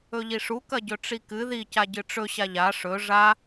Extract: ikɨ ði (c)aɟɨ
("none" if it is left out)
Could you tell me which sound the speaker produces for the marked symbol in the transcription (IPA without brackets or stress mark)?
c